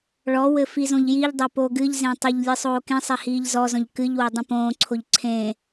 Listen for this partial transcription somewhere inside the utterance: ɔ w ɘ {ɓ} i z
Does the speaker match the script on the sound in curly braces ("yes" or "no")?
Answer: no